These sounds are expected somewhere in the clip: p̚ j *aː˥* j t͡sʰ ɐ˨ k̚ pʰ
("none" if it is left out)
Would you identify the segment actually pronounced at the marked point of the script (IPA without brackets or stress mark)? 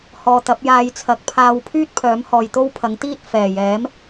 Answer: aː˧